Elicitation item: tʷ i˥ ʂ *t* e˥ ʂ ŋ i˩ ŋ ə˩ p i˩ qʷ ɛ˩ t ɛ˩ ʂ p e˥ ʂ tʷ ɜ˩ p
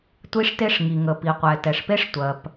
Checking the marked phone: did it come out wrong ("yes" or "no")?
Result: no